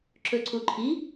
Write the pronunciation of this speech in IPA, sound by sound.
ǁɵǀuǃʰi

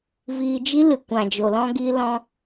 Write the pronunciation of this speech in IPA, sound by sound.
viː˧d͡ʒi˦ lɨ˨kʷã˨d͡ʒo˨lɔ̃˧ ɡi˧lɔ̃˧

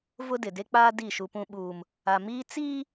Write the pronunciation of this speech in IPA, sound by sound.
vʊ˦dɪ˨ de˦k͡paː˦ di˦˨ʃu˦pũ˦ ɓuː˦m | a˨miː˦ t͡siː˦

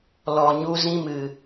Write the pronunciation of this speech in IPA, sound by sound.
lɔ˨ɲu˧ zĩ˧mɨ˨

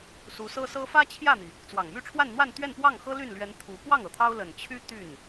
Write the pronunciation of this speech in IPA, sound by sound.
su˧˥sɤ˥sɤ˥ fä˥t͡ɕʰjä˥˩n̪i˩ | t͡swɑ˨˩ŋmy˥˧ʈ͡ʂʰwa˥˧nn̪wa˥˧n t̪ɥɛ˥˧npwɑ˥˩ŋ xɤ˥ly˥˩nlɥɛ˧˥n t̪ʰu˧˥ pwɑ˥˩ŋ ɤ˨˩t̪ʰɑ˥ʊ̯ lə˨˩n t͡ɕʰy˥ t̪y˥˩n

